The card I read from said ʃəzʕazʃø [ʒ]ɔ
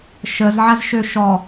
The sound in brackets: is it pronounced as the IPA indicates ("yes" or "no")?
no